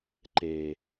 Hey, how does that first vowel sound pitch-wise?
low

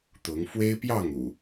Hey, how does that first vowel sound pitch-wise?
rising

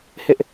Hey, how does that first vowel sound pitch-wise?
high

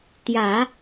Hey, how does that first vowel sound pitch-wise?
low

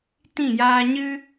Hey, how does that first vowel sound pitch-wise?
falling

